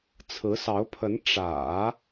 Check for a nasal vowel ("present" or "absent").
absent